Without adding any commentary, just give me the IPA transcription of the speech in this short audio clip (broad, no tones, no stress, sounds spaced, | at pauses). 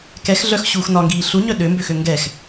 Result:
k ɛ x ɮ œ x ɕ uː x n ɒ ŋ ɡ iː ɬ u ɲ œ ɗ ø m b ø x ø ŋ ɡ ɛ x